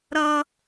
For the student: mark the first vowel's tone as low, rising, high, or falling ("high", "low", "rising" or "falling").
high